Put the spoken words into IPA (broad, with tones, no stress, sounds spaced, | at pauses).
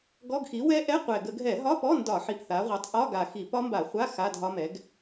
ɡ ɔ˧˥˧ ɡ x i˩˥ w ɛ˦˥ ʔ ɛ˧˥˧ qʷ ɛ˨˩ ɡ ə˧˩˧ ɡʱ ɛ˧˩˧ ɦ ɒ˧˥˧ p ɔ˧˥˧ n d ɒ˧˩˧ ħ i˨˩ p θ a˩˧ ʁʷ ɛ˩˥ tˤ ʔ ɒ˧˥˧ ɡ a˨˩ x i˧˩˧ p ɒ˦˥ m b a˧˩˧ χʷ a˧˥˧ x a˧˥˧ dʱ ɒ˦˥ m ɛ˩˥ ɡ